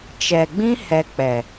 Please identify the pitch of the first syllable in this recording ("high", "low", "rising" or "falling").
low